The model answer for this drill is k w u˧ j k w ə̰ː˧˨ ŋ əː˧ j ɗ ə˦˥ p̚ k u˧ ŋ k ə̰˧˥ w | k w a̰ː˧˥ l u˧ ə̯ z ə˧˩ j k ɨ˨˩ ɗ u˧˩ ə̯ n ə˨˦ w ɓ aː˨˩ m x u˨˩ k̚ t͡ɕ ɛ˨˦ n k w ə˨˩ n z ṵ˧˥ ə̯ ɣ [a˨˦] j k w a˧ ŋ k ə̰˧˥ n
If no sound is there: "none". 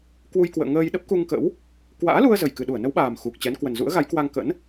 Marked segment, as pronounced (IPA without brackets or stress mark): a˨˦